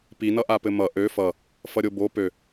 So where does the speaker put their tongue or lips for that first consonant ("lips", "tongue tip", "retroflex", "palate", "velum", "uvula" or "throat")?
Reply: lips